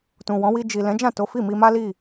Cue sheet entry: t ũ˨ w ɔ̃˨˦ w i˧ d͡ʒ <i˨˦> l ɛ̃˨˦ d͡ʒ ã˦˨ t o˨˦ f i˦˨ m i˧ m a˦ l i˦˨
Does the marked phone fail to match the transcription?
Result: yes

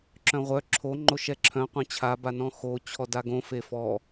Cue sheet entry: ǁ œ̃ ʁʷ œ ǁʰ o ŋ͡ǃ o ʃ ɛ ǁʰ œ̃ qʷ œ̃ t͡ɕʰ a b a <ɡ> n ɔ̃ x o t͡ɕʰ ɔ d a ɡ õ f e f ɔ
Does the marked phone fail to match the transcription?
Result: yes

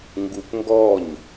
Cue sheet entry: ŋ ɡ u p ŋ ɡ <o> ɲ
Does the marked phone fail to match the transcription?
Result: yes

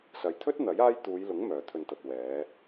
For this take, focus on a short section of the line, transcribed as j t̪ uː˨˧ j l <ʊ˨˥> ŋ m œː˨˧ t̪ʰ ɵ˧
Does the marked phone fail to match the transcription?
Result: no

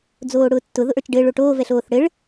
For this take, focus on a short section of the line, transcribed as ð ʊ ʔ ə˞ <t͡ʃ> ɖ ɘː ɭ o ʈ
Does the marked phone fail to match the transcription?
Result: no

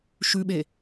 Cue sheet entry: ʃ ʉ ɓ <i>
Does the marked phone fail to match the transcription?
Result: yes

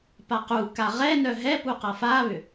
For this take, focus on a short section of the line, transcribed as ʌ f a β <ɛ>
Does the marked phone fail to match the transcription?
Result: yes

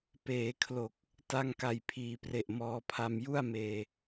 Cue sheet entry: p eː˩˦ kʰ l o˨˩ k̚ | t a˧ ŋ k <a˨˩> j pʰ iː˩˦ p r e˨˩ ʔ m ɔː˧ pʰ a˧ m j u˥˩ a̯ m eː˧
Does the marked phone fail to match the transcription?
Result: no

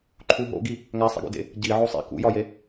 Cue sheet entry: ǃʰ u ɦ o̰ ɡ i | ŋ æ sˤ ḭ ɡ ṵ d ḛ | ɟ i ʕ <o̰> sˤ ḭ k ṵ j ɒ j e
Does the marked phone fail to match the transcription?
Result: yes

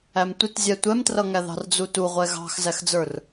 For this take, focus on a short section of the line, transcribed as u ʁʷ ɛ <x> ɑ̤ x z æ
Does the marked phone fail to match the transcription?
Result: yes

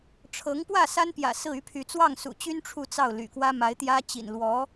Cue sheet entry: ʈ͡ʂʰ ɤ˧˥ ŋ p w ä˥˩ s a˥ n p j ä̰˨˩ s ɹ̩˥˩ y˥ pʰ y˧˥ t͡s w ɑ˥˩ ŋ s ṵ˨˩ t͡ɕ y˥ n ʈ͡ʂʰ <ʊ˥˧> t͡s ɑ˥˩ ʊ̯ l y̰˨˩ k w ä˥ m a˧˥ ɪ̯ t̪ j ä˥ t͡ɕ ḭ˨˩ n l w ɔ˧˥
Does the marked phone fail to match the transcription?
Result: yes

